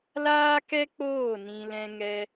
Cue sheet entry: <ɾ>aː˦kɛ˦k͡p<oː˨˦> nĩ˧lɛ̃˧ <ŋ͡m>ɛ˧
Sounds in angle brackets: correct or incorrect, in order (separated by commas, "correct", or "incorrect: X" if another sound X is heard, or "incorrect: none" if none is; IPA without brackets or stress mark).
incorrect: l, incorrect: oː˦˨, incorrect: ŋ